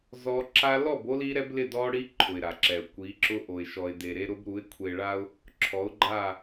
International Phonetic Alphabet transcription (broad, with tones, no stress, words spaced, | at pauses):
zɔ˦ ǁa˦ lɔ˦˨bo˦li˦ ɾɛ˦blɪ˦˨dɔ˦ɽi˦ ǃʰʊ˨ɪ̯ɾa˨ǁɛ˨ʊ̯ kʷi˨˦ǁʊ˦ʔo˨ɪ̯ ʃɔ˨ɪ̯de˨ɾe˦ ɾʊ˦bɾu˨˦ɪ̯kʷʰe˨ɭa˦ʊ̯ | ǁʰɔ˨˦ʊ̯ɡ͡ǃa˦˨